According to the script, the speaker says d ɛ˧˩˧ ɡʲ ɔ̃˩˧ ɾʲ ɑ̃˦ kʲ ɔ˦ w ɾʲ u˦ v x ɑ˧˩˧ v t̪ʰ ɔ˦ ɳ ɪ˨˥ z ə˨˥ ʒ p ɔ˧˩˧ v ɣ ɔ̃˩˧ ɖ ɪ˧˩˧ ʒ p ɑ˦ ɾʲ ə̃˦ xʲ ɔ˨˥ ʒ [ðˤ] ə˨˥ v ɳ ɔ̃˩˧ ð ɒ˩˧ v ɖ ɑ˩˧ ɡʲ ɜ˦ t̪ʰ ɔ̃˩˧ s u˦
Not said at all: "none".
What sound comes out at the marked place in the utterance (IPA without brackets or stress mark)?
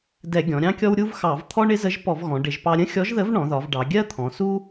ð